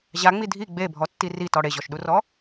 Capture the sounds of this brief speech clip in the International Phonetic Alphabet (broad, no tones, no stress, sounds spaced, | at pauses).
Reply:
ʑ a ŋ͡m i dʱ i ɡ͡b e bʱ ɔ tː i r i t ɔ ɽ e ʑ ɔ ʃ ɗ u r ɔ